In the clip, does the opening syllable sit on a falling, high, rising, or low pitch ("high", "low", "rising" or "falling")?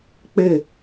falling